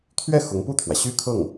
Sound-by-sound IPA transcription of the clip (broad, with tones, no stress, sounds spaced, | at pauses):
t̪ʰ ɥ ɛ˥˩ x ʊ˧˥ ŋ p u˥˩ t̪ʰ w ä˩ ɕ y˥ kʰ ɤ˥˩ ŋ